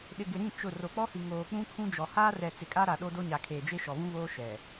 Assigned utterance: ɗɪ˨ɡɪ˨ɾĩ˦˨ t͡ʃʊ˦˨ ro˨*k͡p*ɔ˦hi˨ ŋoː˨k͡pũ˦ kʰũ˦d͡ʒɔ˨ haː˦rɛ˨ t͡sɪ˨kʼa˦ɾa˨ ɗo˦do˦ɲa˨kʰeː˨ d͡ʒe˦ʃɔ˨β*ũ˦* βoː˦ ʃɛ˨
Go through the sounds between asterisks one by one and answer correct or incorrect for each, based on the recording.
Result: correct, correct

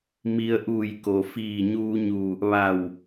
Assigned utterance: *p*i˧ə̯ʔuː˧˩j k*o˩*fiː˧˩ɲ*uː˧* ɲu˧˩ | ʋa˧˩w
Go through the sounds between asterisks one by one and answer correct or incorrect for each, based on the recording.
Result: incorrect: m, correct, correct

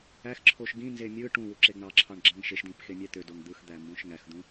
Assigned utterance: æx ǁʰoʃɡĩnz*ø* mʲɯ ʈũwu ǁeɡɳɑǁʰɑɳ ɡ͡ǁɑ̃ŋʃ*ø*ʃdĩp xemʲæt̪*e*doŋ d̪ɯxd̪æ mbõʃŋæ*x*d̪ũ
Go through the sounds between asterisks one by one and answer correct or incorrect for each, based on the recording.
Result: incorrect: e, incorrect: e, incorrect: ø, correct

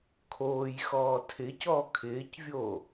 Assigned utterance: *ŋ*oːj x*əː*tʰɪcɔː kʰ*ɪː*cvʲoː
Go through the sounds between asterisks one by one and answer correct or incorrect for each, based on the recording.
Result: incorrect: kʰ, incorrect: ɔː, correct

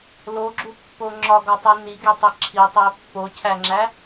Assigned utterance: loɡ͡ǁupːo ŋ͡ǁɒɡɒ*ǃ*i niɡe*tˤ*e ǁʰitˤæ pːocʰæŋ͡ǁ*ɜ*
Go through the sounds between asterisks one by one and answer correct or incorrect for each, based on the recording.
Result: incorrect: tˤ, correct, incorrect: æ

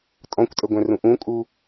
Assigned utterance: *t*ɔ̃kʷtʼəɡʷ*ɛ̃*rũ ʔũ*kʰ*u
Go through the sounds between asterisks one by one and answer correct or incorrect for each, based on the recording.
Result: incorrect: tʼ, correct, incorrect: kʼ

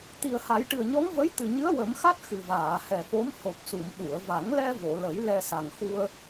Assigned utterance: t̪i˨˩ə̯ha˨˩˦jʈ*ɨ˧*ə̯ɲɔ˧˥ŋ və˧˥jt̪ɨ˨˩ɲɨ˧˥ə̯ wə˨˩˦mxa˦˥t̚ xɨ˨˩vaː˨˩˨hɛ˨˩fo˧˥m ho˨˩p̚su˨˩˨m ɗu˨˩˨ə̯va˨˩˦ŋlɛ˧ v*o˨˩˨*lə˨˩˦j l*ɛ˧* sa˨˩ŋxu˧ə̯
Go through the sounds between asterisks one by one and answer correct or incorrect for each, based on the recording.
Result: incorrect: ɨ˨˩, correct, correct

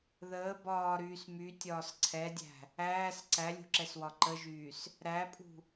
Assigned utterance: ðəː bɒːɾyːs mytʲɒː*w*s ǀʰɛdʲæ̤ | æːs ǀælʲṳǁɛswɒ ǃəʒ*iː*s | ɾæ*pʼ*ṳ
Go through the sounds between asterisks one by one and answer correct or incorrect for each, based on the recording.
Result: incorrect: none, incorrect: yː, correct

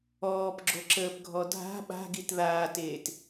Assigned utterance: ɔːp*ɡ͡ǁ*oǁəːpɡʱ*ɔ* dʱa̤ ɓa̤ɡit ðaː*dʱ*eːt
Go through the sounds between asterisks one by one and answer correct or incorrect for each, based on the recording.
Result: correct, correct, incorrect: t

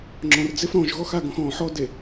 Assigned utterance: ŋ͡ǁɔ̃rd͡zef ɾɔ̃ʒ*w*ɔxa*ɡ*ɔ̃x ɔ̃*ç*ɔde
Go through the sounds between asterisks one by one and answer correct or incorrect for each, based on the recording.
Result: incorrect: ɣ, correct, incorrect: ħ

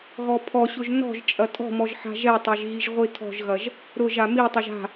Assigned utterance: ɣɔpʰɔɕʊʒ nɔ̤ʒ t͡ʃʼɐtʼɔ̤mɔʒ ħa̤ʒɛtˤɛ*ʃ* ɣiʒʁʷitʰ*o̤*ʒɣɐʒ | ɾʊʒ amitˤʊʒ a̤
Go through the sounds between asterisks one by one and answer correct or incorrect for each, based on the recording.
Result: incorrect: ʒ, incorrect: ɔ̤

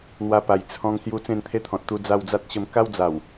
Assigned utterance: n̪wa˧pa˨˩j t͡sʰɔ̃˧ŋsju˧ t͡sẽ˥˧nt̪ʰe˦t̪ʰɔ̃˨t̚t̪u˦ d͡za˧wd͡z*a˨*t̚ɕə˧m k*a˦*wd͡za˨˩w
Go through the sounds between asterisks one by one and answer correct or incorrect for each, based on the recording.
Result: incorrect: a˦, correct

